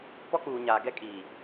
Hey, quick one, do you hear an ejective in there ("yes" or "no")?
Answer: yes